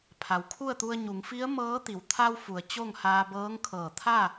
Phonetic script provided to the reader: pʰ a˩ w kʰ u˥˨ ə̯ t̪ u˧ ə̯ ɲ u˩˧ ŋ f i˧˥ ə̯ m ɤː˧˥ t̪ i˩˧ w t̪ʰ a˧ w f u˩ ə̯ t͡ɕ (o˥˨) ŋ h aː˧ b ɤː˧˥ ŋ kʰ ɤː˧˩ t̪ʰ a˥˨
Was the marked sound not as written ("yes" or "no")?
no